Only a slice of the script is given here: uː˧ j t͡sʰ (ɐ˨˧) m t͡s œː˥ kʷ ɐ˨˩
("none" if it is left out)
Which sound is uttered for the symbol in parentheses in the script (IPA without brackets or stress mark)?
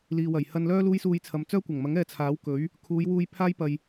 ɐ˨